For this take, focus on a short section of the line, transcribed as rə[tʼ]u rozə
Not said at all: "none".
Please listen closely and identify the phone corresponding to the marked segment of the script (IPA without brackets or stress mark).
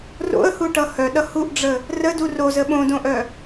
d